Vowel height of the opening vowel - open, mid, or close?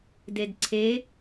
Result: mid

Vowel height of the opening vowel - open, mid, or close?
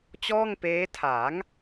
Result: mid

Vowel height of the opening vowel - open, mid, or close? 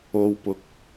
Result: mid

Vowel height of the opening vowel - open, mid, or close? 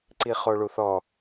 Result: close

